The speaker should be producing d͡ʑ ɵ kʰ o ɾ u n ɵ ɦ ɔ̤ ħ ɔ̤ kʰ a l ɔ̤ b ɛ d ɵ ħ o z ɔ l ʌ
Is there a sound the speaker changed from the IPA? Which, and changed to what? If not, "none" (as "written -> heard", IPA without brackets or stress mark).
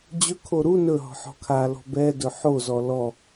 ʌ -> ɔ